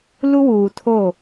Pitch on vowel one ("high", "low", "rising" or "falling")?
high